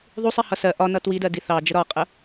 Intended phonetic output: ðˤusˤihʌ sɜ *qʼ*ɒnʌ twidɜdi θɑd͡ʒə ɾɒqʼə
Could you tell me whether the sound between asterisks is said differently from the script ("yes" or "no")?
yes